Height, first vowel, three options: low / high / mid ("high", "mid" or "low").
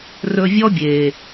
mid